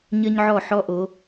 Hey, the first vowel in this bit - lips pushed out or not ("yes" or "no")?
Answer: no